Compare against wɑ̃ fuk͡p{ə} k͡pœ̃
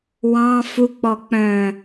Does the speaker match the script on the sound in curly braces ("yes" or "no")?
no